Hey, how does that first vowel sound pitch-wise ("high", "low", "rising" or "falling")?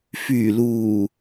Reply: low